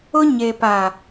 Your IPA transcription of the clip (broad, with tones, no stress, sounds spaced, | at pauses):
ʊ˦ ɲ e˨ p a˨